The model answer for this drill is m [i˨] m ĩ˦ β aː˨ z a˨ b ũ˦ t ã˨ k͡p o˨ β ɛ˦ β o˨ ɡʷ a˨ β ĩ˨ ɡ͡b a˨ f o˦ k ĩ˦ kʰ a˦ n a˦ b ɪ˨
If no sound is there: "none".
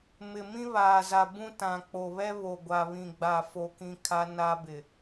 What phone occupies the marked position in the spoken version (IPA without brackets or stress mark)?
ɪ˨